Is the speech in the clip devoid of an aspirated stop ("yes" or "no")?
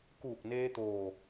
yes